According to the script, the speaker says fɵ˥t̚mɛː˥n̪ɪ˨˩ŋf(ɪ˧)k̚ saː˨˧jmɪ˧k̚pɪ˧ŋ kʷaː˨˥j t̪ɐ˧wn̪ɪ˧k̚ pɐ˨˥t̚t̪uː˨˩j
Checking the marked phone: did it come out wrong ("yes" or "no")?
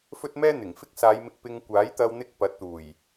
yes